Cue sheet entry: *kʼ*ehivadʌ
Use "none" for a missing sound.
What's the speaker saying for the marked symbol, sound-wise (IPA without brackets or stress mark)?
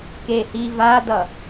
k